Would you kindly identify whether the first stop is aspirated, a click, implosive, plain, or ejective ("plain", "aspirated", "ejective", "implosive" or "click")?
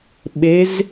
implosive